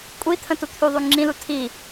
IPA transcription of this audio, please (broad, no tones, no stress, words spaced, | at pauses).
kʷʼit̪ʰə̃tu t̪ʰyðˤy ŋ͡ǁĩlu tʰi